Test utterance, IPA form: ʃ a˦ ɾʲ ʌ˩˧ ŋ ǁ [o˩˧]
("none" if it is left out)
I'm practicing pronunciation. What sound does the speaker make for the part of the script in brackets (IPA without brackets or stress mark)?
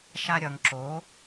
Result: o˨˥